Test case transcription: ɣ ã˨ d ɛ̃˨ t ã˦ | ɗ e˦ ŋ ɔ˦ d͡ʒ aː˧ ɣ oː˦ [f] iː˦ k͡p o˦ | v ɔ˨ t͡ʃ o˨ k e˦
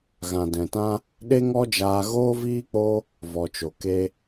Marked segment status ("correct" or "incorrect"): incorrect